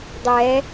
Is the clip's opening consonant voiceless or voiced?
voiced